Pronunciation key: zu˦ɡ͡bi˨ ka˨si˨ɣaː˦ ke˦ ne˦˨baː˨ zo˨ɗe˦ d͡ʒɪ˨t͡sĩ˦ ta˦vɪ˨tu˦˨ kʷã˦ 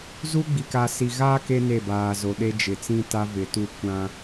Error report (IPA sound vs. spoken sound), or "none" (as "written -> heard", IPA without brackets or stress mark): none